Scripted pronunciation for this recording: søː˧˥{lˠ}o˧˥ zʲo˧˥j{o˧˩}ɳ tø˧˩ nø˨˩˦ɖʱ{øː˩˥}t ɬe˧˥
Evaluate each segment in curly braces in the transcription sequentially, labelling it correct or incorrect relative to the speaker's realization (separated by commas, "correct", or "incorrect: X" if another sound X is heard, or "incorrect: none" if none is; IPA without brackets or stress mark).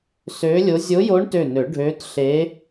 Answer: incorrect: lʲ, incorrect: o˧˥, incorrect: øː˧˥